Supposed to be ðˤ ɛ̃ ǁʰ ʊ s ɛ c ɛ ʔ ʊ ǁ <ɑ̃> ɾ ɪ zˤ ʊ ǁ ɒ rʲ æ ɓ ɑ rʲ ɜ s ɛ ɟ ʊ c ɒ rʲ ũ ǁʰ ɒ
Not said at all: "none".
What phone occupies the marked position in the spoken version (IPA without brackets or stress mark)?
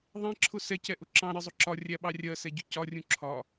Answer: ɑ̃